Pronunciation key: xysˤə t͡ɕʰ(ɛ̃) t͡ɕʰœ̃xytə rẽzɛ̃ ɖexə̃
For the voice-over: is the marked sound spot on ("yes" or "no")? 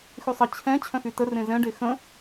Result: yes